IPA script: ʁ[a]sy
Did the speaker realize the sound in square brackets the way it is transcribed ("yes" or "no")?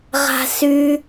no